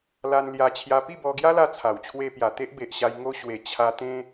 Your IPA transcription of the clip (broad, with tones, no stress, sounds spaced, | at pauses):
l a˧ n l j a˧ t͡ɕʰ j a˧ p i˥˧ b ɔ˧ ɡ j a˦ l a˧ t͡sʰ a˨˩ w t͡ɕʰ w e˧ p j a˨˩ t̪ e˦ ʔ b e˨ ʔ ɕ a˧ j ŋ o˧ ɕ w e˨˩ t͡ɕʰ a˧ t̪ ẽ˦